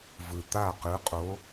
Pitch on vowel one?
low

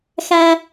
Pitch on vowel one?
high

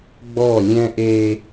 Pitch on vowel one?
falling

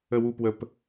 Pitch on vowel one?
low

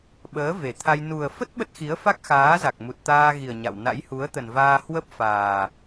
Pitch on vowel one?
rising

